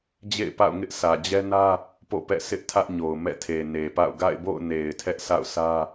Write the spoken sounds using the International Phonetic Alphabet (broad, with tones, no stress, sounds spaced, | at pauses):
d͡ʑ ḛ˦˨ ɪ̯ p a̰˦˨ ʊ̯ ŋ ɪ˦ ʔ sʰ ä˨ d͡ʑ ɛ˦ n ä˦ | p o̰˦˨ p ɛ̰˦˨ s ɪ˦ ʔ tʰ ä˦ ʔ ɲ o˨ ʊ̯ m ɛ̰˦˨ tʰ e˨ n e˨ p a̰˦˨ ʊ̯ ɡ a̰˦˨ ɪ̯ b o̰˦˨ ʊ̯ n e˨ ɪ̯ tʰ ɛ˦ ʔ sʰ a̰˦˨ ʊ̯ sʰ ä˦